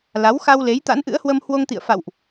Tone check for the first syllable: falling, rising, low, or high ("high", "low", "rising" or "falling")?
rising